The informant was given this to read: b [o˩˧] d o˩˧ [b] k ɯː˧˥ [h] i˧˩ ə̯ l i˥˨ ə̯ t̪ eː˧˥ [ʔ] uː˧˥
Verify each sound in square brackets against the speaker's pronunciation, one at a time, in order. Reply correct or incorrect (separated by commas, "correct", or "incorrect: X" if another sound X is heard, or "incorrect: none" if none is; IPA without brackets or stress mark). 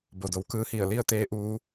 incorrect: o˩, incorrect: w, correct, correct